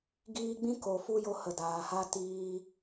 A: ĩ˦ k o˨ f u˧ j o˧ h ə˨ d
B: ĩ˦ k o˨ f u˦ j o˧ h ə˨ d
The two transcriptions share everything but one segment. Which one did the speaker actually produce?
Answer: A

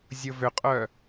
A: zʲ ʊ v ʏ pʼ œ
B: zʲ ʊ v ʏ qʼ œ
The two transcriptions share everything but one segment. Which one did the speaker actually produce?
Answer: B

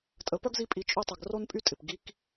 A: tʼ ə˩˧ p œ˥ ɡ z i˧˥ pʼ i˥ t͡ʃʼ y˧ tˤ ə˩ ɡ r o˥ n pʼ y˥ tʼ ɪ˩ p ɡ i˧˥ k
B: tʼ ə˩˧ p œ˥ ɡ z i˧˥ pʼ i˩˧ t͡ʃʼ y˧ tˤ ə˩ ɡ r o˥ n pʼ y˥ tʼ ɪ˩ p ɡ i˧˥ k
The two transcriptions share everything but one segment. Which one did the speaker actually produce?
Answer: B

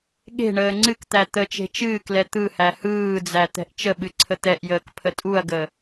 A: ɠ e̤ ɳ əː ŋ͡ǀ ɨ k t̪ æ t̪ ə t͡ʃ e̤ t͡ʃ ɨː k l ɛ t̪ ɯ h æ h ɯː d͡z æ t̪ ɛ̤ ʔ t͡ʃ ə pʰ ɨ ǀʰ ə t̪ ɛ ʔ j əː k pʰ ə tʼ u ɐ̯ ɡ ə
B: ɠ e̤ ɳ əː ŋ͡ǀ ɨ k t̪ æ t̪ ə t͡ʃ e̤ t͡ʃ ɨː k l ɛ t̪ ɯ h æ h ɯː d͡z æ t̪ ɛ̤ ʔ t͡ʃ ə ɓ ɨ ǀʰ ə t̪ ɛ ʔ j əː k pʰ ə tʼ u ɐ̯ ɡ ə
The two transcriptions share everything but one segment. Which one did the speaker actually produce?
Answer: B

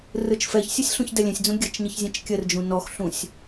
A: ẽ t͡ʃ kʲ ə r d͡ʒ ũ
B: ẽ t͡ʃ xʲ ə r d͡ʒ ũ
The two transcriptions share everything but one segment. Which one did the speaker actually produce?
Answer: A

